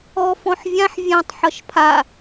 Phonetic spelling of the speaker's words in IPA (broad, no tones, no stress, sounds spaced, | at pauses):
ɔ f ɔ̃ ħ vʲ ã ħ vʲ ã tˤ ħ ʌ ʃ pʰ a